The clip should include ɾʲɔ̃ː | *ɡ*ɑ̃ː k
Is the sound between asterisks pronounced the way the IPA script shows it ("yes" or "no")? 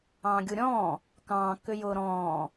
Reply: no